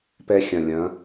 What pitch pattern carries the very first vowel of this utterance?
rising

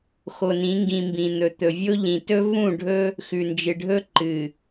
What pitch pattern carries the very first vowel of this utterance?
low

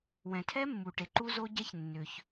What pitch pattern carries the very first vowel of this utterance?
low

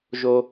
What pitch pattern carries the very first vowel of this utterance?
high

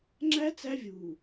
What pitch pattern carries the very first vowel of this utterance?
high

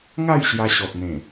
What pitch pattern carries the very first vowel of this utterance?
falling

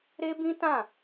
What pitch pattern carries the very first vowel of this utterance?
high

